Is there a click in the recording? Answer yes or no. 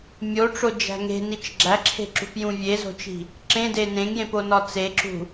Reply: yes